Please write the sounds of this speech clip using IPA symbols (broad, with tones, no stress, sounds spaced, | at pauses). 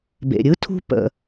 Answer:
b ḛ˩ ɾʲ ɯ˥ tʰ ṳ˦ p ə̰˨